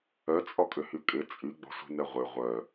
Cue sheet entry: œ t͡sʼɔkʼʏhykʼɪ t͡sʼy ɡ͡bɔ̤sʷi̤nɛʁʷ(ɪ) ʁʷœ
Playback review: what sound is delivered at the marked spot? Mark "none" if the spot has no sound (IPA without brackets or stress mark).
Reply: ɪ